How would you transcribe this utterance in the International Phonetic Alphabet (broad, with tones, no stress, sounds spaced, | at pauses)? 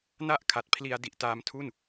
n a˥˩ ʔ kʰ a˨˩ t̚ pʰ l i˧ a̯ d i˨˩ ʔ t aː˧ m tʰ u˥˩ n